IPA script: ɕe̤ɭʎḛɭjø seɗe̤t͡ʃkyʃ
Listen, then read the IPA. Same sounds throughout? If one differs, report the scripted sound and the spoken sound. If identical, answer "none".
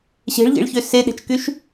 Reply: j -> ç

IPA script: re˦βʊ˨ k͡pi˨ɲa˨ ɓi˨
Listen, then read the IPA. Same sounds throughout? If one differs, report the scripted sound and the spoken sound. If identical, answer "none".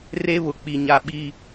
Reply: none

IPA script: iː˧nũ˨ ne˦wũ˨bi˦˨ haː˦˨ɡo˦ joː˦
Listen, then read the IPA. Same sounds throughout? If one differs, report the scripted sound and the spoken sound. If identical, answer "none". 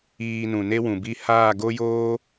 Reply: none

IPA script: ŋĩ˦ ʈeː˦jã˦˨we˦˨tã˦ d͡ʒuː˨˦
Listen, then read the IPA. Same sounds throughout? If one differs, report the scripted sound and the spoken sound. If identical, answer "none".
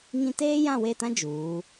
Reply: ʈ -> t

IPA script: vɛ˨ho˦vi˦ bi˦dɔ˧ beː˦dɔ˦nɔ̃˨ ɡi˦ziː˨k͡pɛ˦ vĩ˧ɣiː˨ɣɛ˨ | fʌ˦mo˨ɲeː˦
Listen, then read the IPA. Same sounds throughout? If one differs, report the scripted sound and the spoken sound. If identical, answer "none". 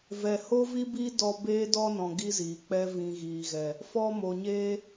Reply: ʌ˦ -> ɔ˦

